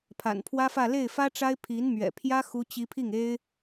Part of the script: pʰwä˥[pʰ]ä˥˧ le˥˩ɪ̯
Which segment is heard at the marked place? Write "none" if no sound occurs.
f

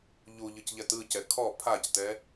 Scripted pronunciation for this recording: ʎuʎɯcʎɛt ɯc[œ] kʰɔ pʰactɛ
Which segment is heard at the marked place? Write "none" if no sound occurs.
ɛ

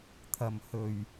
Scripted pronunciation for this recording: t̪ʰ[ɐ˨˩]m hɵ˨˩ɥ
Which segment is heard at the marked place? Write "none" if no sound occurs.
ɐ˨˩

